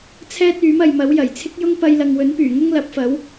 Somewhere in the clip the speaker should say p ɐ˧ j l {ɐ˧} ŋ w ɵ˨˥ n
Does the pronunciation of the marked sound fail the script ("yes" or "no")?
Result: yes